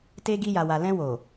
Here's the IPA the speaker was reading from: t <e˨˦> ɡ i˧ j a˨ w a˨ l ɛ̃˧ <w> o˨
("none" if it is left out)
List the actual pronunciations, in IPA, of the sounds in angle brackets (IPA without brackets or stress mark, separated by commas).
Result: e˧, w